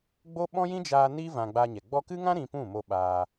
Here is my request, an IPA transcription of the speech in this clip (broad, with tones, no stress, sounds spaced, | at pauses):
ɡ͡b o˦ ɓ ɔ̃˦ j ĩ˦ d͡ʒ aː˧ n i˦ v ã˧ ɡ͡b a˧ ɲ ɛ˨ ɡ͡b ɔ˧ k ɨ˦ ŋ ã˦ ɾ ĩ˧ p ũ˦˨ m o˧ ɓ aː˧